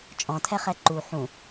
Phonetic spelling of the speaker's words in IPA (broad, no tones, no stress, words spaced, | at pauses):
t͡ʃʼɔ̃tʰɛχɛ ǃu ħũ